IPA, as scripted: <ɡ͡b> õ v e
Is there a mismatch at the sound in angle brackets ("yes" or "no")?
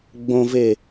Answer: no